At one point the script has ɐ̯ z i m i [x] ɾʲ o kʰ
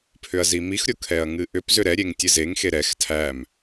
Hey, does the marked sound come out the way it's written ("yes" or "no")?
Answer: yes